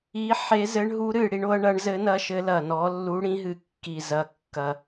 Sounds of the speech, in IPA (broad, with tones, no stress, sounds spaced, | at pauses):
i˨˦ ħ e˨˦ z ɘ˨˦ ɳ ɦ u˨˦ ɾ ɨ˨˩ ɽ i˨˦ ɳ o˨˦ ɐ̯ ɳ ɐ˨˦ ɳ z ɘ˨˦ n ɐ˨˦ ʃ ɘ˨˦ l ɐ˨˩ n ɔ˨˦ lː u˨˦ ɽ ĩ˨˦ ɦ ɨ˨˩ kː i˨˩ z ɐ˨˩ kː ɐ˨˩